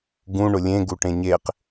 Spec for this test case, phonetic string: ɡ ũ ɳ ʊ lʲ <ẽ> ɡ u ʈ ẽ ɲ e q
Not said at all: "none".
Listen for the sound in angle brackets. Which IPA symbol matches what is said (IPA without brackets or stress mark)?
ẽ